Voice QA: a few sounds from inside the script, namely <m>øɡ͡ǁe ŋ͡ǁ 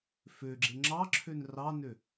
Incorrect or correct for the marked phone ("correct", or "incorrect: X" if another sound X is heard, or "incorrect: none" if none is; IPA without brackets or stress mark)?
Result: incorrect: f